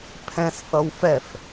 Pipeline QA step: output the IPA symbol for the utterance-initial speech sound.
pʰ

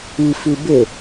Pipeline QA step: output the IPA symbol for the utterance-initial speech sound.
i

